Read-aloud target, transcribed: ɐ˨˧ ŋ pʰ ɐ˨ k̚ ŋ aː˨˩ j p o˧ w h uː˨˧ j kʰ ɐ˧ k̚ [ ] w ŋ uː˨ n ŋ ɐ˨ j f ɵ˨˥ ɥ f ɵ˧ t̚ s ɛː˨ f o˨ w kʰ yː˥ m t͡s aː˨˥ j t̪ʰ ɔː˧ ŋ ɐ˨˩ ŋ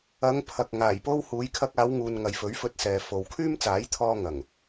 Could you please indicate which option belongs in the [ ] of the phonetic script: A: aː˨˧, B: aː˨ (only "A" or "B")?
A